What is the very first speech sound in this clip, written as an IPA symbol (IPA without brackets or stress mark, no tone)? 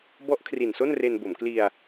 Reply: b